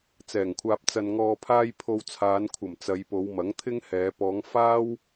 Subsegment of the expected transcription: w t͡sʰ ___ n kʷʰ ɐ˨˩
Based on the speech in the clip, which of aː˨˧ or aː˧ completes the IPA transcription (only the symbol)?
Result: aː˨˧